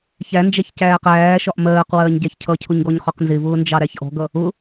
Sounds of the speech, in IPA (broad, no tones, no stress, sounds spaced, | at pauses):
ç æ n d͡ʒ æ ç c æː q æː ʃ ɒ ʔ m ɜː q w ɜː ɲ ɟ æ ç cʰ ʌ cʰ ʊ ɲ ɡ ɔ ɲ χ ɒ q n z ɪ v ʊː n d͡ʒ ɑ ɾ æ ç ʔ ɔ̤ ɡ ʌ | ʊ